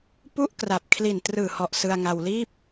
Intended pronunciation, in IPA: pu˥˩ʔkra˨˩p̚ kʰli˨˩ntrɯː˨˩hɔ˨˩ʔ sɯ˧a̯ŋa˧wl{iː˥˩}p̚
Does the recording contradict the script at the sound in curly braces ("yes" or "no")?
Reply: no